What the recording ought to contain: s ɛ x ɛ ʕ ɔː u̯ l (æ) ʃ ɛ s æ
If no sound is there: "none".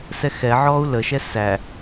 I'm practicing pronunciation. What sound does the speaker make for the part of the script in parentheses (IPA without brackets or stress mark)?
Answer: ə